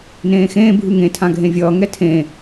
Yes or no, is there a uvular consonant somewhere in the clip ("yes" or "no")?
no